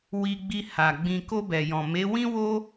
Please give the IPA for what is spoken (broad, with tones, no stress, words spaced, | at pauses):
wi˧ɡ͡bi˧ha˨ ɡ͡bĩ˨ko˧ bɛ˨jɔ̃˨ me˨˦wĩ˦wo˦